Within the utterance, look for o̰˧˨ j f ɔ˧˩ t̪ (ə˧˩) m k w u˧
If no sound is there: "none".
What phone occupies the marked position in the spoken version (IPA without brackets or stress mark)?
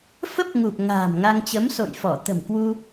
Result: ə̤˨˩